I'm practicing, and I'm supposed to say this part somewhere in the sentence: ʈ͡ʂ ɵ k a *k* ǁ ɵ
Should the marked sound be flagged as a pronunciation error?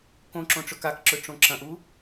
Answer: no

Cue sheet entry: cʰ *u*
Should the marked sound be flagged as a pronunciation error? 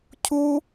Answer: no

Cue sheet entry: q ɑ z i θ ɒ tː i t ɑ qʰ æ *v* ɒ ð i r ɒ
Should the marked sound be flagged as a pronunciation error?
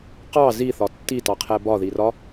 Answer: yes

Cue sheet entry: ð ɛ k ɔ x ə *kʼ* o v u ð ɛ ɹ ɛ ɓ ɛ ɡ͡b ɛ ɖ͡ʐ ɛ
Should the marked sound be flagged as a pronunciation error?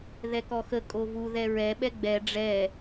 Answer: no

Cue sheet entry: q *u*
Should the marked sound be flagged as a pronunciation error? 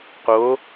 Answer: yes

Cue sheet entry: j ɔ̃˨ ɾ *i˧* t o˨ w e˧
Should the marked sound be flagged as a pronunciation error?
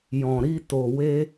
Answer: no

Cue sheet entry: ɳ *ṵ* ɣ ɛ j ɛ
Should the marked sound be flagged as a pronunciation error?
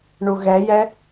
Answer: yes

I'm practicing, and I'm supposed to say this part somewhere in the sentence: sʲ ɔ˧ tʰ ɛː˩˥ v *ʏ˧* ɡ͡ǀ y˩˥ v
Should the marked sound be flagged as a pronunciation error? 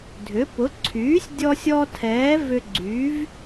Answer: no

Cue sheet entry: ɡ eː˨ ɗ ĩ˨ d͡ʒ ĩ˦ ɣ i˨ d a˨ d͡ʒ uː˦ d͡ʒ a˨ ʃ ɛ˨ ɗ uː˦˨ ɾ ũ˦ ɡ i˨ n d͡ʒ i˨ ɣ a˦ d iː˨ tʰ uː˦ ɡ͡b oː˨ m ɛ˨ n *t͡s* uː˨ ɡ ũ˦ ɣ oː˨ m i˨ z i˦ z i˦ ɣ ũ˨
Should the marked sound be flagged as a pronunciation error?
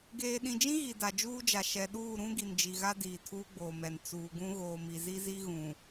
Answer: no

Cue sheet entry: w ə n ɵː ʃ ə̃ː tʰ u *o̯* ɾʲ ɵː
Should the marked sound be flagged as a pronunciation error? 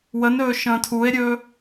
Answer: yes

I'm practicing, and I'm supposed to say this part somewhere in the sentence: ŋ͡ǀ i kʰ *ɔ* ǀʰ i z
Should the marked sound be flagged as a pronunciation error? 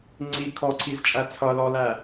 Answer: no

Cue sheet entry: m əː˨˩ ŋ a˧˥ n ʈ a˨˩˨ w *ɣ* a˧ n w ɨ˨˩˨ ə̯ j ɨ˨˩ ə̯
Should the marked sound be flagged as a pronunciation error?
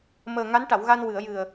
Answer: no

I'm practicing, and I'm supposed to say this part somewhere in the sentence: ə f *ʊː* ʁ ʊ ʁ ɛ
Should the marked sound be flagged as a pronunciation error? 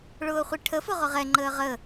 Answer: yes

